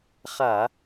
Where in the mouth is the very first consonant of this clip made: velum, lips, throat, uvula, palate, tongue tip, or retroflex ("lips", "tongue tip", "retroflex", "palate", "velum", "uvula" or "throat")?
uvula